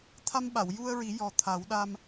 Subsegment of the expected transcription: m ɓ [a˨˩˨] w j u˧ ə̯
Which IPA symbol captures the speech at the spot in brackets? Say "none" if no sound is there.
a˨˩˨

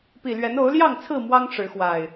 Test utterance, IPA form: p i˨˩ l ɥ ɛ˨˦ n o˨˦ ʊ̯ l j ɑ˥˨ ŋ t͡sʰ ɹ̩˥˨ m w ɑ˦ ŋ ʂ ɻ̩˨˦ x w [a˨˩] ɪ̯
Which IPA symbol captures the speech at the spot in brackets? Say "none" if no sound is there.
a˨˩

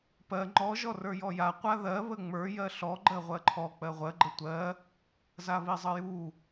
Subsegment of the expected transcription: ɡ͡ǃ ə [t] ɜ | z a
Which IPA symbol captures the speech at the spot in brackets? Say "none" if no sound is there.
tʷ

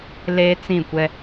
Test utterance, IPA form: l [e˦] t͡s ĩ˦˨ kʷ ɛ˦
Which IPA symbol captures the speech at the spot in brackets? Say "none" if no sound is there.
e˦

